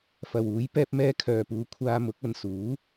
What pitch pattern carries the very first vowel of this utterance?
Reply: low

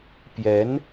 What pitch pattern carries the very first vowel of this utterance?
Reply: rising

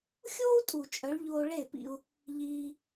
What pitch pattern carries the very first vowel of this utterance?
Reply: high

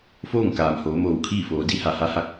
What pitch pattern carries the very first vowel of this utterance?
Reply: falling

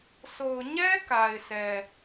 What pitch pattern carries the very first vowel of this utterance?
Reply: low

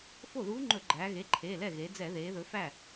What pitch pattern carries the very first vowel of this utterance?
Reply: falling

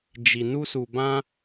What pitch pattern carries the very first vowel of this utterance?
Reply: low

